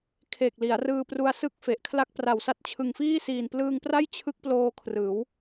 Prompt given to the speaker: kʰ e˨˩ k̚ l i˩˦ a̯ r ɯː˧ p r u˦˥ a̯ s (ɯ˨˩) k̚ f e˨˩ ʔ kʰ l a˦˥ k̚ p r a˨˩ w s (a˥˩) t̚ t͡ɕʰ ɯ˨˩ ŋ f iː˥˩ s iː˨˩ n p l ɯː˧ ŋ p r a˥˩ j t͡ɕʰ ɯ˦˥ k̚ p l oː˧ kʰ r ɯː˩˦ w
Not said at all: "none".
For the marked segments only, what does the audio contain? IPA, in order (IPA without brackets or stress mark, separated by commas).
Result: ɯ˥˩, a˦˥